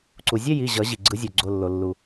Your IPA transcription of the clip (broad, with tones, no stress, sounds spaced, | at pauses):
ǀ u˩ zʲ ɛ˥˧ j i˩˧˩ ʑ ʌ˨˩˦ ʑ i˩ ɡ͡ǀ ɯ˨˩˦ zʲ o˩ ɡ͡ǀ o˩˧˩ lː o˩ lː u˩